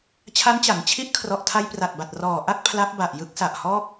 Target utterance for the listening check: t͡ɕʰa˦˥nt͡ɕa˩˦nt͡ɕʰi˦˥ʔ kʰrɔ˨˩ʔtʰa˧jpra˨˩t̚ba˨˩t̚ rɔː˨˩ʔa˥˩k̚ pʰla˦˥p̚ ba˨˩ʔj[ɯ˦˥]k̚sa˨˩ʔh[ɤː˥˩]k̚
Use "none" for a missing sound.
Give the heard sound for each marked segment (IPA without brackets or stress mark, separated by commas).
ɯ˦˥, ɔː˥˩